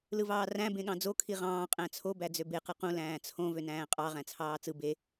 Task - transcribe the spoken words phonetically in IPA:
l ɯ v ɑː r æ̃ b ẽ ɠ ɑ̃ d͡z o kʰ i ʁ ɑ̃ː qʼ æ̃ t͡sʰ o b æ d͡z ø b e q ɯ q ũ l æ̃ː t͡sʰ õ v ø n æ̃ː qʼ ɑ ʁ æ̃ t͡sʰ ɑː t͡s ɯ b e

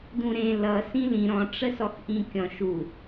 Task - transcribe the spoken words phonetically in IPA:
d ũ ɾ ẽ l ʌ s ĩ l ĩ ɾ ɔ̃ ʈ͡ʂ ə s ɔ x ʔ ĩ kʲ ɔ̃ ʃ u

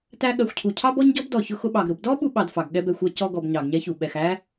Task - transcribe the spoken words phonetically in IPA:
t æ˦ ɠ ɜ˨ xʷ cʰ u˩ cʰ ɑ˥ b ɔ˥ ɲ ɟ ɔ˥ b d ɔ˩ ç ʊ˦ x ʊ˦ ɓ ɑ˩ ɡ ɾ ʊ˨ b d ɔ˥ ɓ u˥ ɓ ɑ˨ d f ɑ˩ ɡ ɠ ɛ˦ b ɛ˨ xʷ ɜ˦ c ɔ˦ ɡ ɔ˨ b ɲ ɑ˩ ɡ ɲ ɛ˥ ç u˩ ɓ ɛ˩ x æ˥

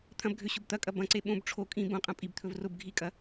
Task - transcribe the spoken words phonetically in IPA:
t̪ʰ ɐ̃ b ɡʱ ø ɕ ʊ b t̪ ɐ kʼ ɐ b ɐ̃ ǀ e ɓ õ b ʈ͡ʂʰ o kʼ ĩ b õ qʼ ɐ̃ pʼ i b t̪ʰ ɵ v r ʊ b ɡʱ i kʼ ɐ

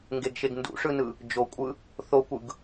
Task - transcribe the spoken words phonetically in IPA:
ŋ ɡ e ɡ ʃ e ɡ n d ṵ ʂ ɯ n ɯ | d͡ʒ o kʷʼ ɯ | θ o kʷ ɯ ɡ

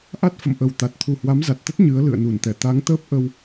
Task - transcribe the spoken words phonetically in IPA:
ʔ a˦˥ t̚ f ə̰˧˨ m ʔ ə˨˩ w t̪ a˨˩ t̚ t̪ʰ u˨˩ h w a˨˦ m z a˨˩ t̚ t̪ ə˦˥ t̚ ɲ ɨ˨˦ ə̯ l ɨ̰˧˨ ə̯ n u˧˩ n t̪ ɛ˧˩ t̪ a˨˦ ŋ t̪ əː˦˥ p̚ ʔ ə˧ w

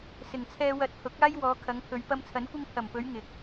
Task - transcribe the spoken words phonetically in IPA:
s ɪ˨˩ ŋ t͡sʰ ɛː˧ w ɐ˧ t̚ h ʊ˨˥ k̚ aː˥ j w ɔː˨˧ kʰ ɐ˨˧ ŋ pʰ ɵ˨˧ ɥ p ɐ˧ m t͡sʰ ɐ˨˥ n kʷ ɪ˧ ŋ pʰ ɐ˨˩ m p ɵ˨˧ ɥ ŋ ɪ˨ k̚

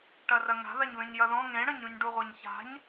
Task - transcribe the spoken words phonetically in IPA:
ʈ ɐ r ɐ ŋ a̤ ð a ɲ β ẽ ɲ j ɐ ð ɔ̃ ŋ ẽ ɽ ɐ̃ ɲ ũ ɲ ɖ u ʁʷ a ɲ ç a̤ ɲ

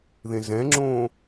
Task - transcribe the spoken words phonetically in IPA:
ð ẽ z ɛ̃ ŋ͡ǁ õː

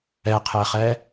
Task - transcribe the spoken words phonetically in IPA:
ɛ qʰ ɛ χ ɛ

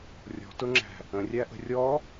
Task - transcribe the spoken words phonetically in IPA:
rʲ ɔ̤ t ʊ ŋ͡ǁ æ̤ | ə̃ rʲ æ ʔ ə̤ rʲ ɔ

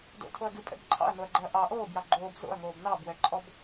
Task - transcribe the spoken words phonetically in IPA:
d o̰ tʰ o ɐ̯ ɡ ɨ pʼ ɛ̰ b ǃʰ ɑ̰ ɐ̯ n o ɐ̯ ɡ͡ǃ ɛ ɐ̯ ʔ ɑ ʔ oː b j ɑ ɡ͡ǃ oː b z o̰ ɐ̯ ŋ oː b n ɑ b w ɛ ǃʼ ɔ b

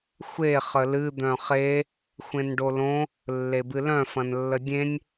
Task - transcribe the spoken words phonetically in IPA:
xʷ e χ ə l ɨ d̪ œ̃ χ e | xʷ ẽ n ɖ o l õ | lː e b ɨ l œ̃ f ɐ̃ n lː ə dʲ ẽ nʲ

